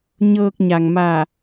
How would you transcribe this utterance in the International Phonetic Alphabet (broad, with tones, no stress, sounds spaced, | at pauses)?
ɲ ɤː˧ k̚ ɲ a˩ ŋ m a˧˩